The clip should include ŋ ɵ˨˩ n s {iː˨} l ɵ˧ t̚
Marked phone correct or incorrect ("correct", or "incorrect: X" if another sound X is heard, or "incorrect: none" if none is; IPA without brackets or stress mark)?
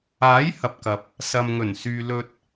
incorrect: yː˨